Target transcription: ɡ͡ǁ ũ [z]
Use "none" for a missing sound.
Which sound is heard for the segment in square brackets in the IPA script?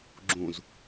z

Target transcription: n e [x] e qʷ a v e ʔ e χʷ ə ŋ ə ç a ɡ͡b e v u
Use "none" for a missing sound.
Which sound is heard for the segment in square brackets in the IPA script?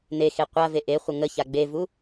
x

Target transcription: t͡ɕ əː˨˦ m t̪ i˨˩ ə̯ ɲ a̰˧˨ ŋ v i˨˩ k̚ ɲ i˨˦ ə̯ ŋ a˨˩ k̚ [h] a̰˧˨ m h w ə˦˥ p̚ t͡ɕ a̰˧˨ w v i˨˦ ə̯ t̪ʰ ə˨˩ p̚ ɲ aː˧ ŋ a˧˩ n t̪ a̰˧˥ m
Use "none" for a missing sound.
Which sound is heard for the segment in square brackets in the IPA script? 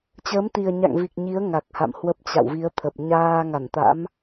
h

